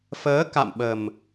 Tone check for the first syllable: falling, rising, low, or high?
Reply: rising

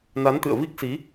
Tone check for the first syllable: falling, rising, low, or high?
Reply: rising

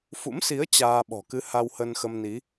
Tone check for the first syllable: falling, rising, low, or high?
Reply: rising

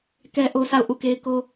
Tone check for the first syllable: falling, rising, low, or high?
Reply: high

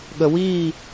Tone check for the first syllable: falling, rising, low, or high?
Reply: low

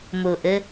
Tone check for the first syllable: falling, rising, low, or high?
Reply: low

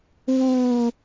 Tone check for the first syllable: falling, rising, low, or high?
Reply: high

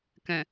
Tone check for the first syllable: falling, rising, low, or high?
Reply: low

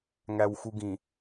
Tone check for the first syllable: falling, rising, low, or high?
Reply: low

